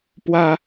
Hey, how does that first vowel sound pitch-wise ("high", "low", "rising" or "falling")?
high